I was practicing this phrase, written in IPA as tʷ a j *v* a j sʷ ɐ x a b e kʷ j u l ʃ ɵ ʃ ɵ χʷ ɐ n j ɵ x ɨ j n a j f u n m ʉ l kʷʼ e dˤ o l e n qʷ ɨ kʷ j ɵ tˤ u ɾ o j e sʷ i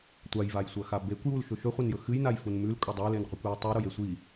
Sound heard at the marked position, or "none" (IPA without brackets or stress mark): v